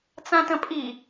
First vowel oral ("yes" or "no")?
no